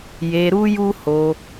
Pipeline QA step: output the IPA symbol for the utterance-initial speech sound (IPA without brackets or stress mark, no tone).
j